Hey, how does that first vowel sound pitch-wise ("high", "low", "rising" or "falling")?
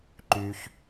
low